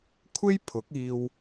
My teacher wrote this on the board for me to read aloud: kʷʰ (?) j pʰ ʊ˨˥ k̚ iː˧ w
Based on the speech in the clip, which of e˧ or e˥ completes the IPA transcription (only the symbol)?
e˥